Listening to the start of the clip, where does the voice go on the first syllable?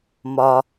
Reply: low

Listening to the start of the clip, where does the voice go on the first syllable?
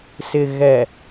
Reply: low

